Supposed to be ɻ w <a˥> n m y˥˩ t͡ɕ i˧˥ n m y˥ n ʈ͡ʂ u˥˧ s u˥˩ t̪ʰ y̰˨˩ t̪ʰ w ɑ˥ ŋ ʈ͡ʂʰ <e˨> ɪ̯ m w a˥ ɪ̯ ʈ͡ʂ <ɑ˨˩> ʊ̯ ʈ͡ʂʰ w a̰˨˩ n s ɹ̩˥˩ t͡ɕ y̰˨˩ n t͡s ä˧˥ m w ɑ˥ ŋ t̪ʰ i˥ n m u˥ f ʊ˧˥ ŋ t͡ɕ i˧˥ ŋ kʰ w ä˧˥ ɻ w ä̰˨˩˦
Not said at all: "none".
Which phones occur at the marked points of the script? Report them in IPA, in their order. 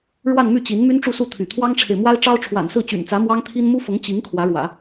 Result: a˥˧, e˨, ɑ˥

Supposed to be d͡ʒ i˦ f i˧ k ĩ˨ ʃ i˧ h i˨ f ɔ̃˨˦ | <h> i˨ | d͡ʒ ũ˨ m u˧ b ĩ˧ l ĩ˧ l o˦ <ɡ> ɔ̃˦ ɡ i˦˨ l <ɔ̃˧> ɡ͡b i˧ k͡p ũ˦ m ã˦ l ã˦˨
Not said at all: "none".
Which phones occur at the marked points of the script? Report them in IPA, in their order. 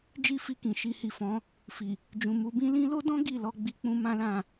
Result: f, d, ɔ˧

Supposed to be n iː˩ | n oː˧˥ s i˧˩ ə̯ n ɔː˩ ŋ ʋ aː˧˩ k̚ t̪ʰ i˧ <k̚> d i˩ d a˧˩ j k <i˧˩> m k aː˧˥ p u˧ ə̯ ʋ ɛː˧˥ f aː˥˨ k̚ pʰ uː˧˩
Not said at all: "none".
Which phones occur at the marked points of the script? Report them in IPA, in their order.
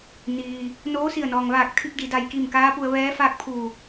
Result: k̚, i˧˩

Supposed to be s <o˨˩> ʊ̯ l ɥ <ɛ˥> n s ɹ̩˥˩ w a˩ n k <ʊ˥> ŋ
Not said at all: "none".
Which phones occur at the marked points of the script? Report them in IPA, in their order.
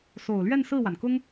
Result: o˨˩, ɛ˥˧, ʊ˥

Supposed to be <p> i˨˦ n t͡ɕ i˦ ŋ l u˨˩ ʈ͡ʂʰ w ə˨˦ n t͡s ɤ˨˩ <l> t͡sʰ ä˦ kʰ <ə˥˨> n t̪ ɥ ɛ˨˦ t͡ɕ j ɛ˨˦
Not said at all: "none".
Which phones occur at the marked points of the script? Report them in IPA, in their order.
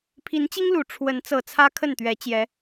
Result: pʰ, none, ə˥˨

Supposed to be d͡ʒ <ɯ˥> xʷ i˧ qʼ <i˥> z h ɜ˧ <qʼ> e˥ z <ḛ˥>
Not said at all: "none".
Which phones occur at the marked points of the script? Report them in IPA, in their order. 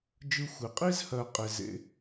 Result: ɯ˥, i˥, qʼ, ḛ˥

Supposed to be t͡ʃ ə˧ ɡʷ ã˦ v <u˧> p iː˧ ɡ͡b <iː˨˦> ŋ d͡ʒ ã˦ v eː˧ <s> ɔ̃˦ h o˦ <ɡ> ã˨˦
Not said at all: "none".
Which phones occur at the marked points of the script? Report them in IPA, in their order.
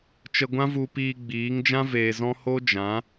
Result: u˧, iː˨˦, z, d͡ʒ

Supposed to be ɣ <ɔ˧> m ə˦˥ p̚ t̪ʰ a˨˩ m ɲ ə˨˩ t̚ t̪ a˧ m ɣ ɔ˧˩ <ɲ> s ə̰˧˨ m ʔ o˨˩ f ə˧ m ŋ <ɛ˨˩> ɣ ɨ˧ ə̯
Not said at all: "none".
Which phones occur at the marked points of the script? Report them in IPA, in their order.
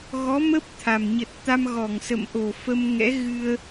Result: ɔ˨˦, ŋ, ɛ̰˧˥

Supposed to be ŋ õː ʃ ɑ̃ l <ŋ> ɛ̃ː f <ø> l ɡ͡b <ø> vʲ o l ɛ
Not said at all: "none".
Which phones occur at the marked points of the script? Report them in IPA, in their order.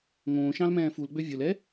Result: m, u, ø

